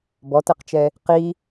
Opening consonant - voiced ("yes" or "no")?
yes